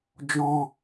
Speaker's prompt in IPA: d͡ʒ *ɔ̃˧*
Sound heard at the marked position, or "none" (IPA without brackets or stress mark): ɔ̃˧